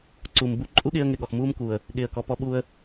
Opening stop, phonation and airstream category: click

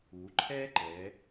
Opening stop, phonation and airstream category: click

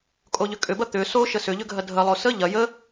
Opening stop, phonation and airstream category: ejective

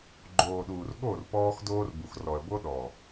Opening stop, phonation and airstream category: click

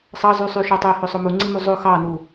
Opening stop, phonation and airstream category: plain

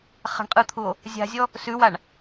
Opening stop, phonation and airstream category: ejective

